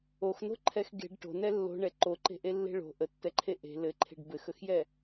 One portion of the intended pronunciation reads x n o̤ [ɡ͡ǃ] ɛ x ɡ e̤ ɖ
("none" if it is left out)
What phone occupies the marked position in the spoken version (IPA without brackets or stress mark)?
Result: ǃʰ